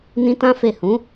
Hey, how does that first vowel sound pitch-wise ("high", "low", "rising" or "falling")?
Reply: high